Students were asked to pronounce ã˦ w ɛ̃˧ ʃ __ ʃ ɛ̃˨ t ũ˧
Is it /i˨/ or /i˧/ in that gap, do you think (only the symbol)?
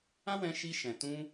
i˧